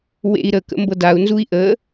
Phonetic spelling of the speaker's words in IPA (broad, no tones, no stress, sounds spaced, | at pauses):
w ḛ i̯ ɾ ə k ə̰ m b ɤ d a u̯ n z u i̯ ʔ ə